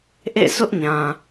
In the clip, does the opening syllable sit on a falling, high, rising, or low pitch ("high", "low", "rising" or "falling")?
falling